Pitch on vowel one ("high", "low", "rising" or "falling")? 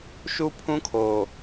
high